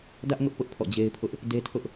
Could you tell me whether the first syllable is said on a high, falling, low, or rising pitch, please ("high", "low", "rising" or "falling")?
high